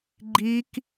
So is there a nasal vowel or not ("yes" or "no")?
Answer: no